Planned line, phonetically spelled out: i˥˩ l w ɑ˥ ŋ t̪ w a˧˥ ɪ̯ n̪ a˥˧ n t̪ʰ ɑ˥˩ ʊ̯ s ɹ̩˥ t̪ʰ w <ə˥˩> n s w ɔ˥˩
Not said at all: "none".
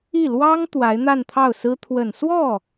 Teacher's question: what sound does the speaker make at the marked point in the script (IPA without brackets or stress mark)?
ə˨˩